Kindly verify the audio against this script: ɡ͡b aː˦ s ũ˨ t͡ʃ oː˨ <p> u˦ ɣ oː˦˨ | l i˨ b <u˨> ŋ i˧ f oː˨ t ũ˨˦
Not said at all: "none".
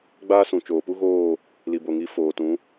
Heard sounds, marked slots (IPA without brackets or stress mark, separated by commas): p, o˨